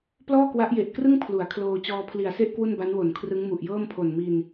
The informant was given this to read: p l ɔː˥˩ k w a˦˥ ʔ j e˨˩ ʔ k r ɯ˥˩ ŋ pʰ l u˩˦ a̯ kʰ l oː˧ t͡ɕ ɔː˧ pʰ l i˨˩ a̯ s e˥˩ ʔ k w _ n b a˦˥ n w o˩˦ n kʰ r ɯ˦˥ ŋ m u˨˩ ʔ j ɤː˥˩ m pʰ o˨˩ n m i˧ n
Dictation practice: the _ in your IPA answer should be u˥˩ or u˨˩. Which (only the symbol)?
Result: u˥˩